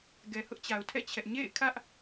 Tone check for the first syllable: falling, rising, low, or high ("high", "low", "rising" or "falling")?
low